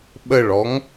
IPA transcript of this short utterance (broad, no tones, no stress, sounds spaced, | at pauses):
ɓ ə ɭ ɔ ŋ